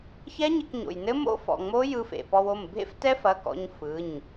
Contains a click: no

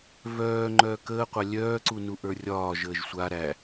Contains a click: yes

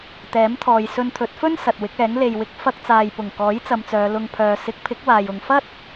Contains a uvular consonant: no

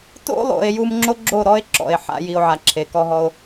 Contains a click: yes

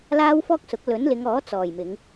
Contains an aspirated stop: no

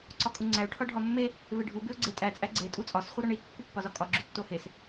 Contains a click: yes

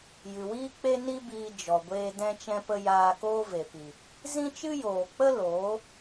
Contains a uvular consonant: no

